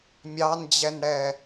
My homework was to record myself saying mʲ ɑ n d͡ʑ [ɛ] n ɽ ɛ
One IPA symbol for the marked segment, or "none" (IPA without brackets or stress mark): ɛ